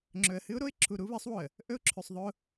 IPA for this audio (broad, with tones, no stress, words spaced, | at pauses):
ŋ͡ǁɵ˨ə̯hɨ˦ʊ̯ ɾo˦ɪ̯ǁʰu˨ ɾu˦βɨ˨˦sˤwo˨ə̯ | ʔɵ˦ʊ̯ǁʰʉ˨sˤðˤɵ˦ʊ̯